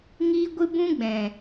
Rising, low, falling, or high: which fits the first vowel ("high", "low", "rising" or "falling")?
high